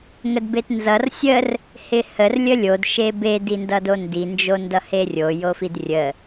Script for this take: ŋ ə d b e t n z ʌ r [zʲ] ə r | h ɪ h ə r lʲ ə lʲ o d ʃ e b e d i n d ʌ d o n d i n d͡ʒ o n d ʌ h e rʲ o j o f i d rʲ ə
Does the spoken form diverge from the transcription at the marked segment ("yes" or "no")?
yes